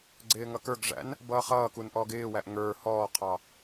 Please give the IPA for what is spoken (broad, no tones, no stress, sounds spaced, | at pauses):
ɡ͡ǀ ɪː ŋ ʌ k ə˞ ɡ ʐ æ̰ n | b ʌː χ ʌː k u n ʔ ɔː ɡ ɪː w æ ʔ ŋ ə˞ h ɔː qʰ ɑ